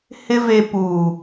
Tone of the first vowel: high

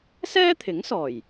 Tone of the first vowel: high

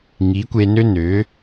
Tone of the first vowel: rising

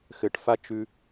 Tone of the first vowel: low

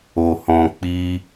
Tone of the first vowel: low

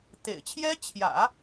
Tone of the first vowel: low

